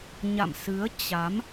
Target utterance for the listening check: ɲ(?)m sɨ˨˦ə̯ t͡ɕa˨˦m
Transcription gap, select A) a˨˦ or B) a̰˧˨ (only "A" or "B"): B